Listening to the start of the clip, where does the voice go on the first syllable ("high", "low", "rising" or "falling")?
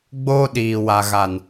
high